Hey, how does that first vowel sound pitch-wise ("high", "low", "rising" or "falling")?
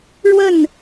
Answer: falling